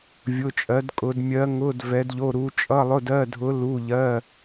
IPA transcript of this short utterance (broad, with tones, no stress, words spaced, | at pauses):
vʲʊ˧˥˧t͡ʃʼɜ˧˥dkʼʊ˧˥d mʲɜ˧˥ŋʊ˧˥˧d vɛ˧˥dʎo˧˥˧ɾu˧˥ t͡ʃʼʌ˧˥˧lˠʊ˧˥˧dɜ˧˥˧dʱʊ˧˥ lu˧˥˧ʎɜ˧˥˧